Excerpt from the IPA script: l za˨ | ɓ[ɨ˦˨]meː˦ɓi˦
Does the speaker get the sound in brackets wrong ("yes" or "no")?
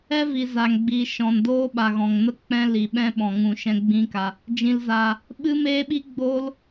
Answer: yes